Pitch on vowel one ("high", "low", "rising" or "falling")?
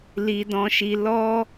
high